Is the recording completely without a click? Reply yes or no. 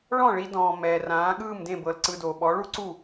no